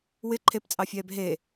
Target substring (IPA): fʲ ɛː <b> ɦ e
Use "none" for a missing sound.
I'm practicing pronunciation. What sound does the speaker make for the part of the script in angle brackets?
b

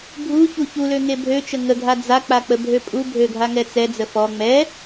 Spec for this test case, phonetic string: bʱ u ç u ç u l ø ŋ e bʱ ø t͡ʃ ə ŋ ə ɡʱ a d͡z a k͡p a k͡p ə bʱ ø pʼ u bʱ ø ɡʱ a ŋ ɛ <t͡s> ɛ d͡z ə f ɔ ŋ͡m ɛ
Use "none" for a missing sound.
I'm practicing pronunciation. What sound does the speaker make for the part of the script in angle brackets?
t͡s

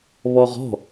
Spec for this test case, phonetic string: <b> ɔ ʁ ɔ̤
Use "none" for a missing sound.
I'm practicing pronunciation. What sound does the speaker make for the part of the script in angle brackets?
β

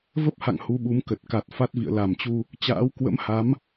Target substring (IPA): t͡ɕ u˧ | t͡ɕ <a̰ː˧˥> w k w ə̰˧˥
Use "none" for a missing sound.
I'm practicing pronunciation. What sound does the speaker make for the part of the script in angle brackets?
a̰ː˧˥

